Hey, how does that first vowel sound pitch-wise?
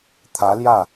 rising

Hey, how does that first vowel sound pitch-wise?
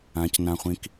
high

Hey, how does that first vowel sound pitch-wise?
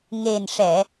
low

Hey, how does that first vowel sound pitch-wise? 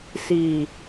low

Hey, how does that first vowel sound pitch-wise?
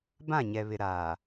falling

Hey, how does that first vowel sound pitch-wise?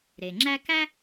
low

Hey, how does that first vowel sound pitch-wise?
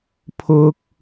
high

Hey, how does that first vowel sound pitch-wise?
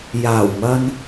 low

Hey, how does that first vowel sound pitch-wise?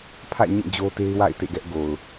falling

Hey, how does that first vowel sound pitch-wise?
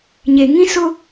low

